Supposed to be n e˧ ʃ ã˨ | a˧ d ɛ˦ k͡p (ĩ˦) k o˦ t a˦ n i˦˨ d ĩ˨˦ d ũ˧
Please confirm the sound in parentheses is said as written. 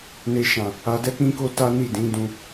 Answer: yes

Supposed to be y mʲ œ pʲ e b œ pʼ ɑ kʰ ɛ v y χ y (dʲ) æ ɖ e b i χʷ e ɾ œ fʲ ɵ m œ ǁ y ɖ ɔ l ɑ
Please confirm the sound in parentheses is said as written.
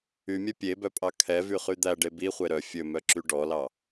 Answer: no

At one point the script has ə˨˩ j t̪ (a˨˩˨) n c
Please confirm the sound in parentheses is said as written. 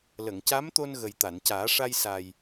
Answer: yes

